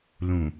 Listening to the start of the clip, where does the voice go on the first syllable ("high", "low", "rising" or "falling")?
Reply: low